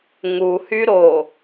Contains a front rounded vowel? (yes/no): yes